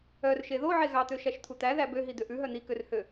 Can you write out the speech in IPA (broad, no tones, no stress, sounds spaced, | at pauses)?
œ r ʃ e ð o ʕ e ɣ ɑ t̪ ø ʃ æ ʃ t̪ʰ u t̪ æ ð æ b ø ɦ i d̪ ø ʔ ʉ ɦ œ n̪ i k ø r h ø